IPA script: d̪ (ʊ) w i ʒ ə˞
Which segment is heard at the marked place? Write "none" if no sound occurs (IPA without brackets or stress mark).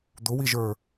ʊ